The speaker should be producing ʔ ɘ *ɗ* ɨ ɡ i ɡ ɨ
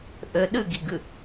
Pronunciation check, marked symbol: correct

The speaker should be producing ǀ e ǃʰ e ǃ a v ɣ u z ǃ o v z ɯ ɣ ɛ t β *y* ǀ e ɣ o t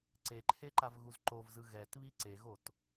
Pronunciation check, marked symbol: incorrect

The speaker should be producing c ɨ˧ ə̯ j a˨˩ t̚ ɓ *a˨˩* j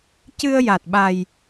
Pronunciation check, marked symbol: correct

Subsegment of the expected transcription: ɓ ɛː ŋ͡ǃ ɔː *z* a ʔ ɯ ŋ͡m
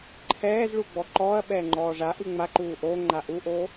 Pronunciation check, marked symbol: incorrect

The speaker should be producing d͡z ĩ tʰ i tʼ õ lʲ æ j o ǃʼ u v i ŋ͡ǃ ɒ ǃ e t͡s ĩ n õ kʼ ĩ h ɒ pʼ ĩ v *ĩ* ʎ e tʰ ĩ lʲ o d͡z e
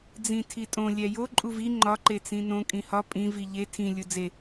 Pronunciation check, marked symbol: incorrect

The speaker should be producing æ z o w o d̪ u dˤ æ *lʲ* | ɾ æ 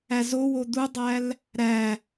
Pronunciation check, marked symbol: incorrect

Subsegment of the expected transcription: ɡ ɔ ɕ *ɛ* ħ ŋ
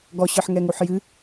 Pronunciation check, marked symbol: incorrect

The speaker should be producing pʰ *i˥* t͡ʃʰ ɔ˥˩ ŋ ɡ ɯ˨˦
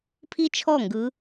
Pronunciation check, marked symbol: correct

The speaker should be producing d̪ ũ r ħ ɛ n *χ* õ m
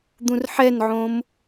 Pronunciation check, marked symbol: incorrect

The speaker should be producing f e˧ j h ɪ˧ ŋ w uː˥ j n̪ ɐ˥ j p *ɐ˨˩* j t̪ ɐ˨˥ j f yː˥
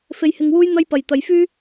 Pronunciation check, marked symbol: incorrect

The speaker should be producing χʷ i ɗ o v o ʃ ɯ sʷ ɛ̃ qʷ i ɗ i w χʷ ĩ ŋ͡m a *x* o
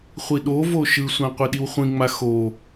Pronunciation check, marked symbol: correct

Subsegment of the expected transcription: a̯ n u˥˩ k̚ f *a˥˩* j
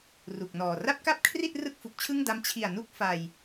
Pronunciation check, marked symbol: incorrect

